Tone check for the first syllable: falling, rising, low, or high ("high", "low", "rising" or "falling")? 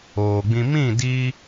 low